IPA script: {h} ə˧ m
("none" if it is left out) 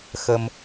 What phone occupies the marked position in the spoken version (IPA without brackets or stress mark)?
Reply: x